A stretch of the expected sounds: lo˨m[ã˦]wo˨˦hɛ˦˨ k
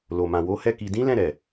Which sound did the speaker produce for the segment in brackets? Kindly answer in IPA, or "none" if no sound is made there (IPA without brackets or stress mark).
ã˨